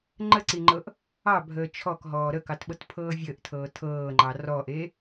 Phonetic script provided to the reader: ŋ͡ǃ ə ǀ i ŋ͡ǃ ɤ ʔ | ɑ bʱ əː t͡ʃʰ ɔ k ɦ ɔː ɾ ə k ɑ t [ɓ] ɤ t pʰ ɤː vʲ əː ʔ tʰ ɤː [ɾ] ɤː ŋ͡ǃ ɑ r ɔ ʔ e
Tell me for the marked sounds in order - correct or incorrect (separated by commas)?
correct, incorrect